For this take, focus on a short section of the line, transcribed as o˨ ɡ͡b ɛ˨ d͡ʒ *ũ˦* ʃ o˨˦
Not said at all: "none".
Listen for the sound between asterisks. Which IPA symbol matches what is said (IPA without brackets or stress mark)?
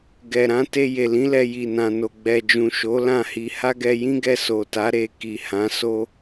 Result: ũ˨